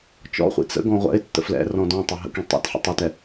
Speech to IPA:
t͡ʃ ɔ̰ χʷ ḭ t͡s ə̰ ɡ ɔ̃ ʁʷ ɛ̰ ɪ̯ tː ə̰ f l ɛ̰ r ɔ̃ d ɔ̃ tˤ ɪ ɦ ə̰ k ĩ tˤ ɛ̰ t ħ ə̰ tˤ ɪ t ɛ

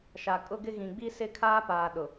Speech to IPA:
ʃ a˨ kʼ ʊ˦ ɡ ɪ˦ ɣ ĩ˨ ɡ͡b i˦ s ɪ˦ kʰ aː˦ p aː˨ ɗ ʊ˨

